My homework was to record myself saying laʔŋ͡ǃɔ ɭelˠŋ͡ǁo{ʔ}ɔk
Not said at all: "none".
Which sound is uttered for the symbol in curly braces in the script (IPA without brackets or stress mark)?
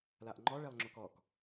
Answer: k